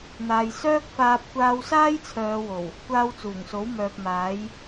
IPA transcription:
n̪ aː˨ j s œː˥ k̚ f aː˧ p̚ kʷ aː˧ w s aː˥ j t͡sʰ œː˨˧ w o˨˩ w | kʷ aː˧ w t͡s uː˨˩ ŋ s o˨˥ w m œː˨ p̚ m aː˨˥ j

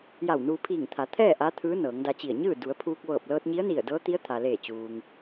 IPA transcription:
j a˧˩ w n uː˧ pʰ iː˧˩ ŋ t̪ʰ a˩˧ t̪ʰ ɛː˥˨ ʔ a˧˥ t̪ʰ ɯː˧˥ n ɤː˩˧ ŋ d a˧ t͡ɕ i˧˩ ə̯ ɲ ɯː˥˨ d u˩˧ ə̯ pʰ uː˧ k̚ ʋ ɤː˧˩ p̚ l ɤː˧ t̚ ɲ i˧˥ ə̯ n i˧˩ ə̯ d ɤː˧˥ t̪ i˧˥ ə̯ t̪ʰ a˩ l eː˧˩ t͡ɕ uː˩ ŋ

